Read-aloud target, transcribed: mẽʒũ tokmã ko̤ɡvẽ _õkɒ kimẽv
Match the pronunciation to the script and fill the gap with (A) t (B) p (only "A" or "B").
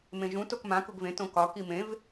A